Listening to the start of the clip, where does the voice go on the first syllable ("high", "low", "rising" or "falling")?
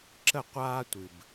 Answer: falling